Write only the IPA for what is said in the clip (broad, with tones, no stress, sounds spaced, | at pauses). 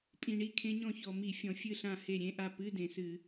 pʼ ĩ˨˩ ɳ i˥˩ kʰ ẽ˦˥ ɲ ɔ̃˥˩ ç ɔ˨˩ m i˧˩˧ fʲ ɔ̃˨˩ fʲ ɨ˥˩ ɬ ã˥˩ h e˥˩ ɾʲ ẽ˧˥˧ ʔ a˥˩ p ɨ˧˥˧ d ẽ˨˩ s ɨ˧˩˧